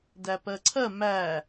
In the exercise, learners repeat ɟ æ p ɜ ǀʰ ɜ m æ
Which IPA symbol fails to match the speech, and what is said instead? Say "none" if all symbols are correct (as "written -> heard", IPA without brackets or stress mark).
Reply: ɟ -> d